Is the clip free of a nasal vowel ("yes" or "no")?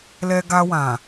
no